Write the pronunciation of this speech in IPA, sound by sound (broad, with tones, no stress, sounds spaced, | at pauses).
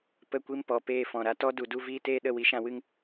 p ə˦˨ kʷ i˦ m p ɔ˨ p eː˦˨ f ɔ̃˨ ɾ a˧ t ɔ˦ d u˧ d u˦ v iː˦ t eː˦ ɗ ə˦˨ w i˦ ʃ ã˦ w ɨ˦ ŋ